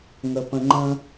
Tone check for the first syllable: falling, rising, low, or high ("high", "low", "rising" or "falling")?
low